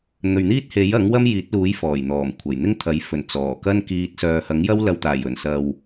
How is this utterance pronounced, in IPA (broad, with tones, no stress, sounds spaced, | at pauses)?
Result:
n̪ ɵ˨ ɥ n̪ iː˥ t̚ h e˨˥ j ɐ˨˥ ŋ w ɐ˥ m j iː˨˥ t̚ l uː˨˥ j f ɔː˨˩ j n̪ ɔː˨˩ m kʷʰ ɐ˨˩ j n̪ ɪ˥ ŋ t̪ʰ ɐ˨˥ j f ɵ˨˩ n t͡s ɔː˨˩ k ɐ˥ n k iː˧ t̚ s œː˨ h ɐ˨˥ ŋ j ɐ˥ w l ɐ˨ w t̪ aː˨˩ j ɵ˨˩ n s ɐ˨ w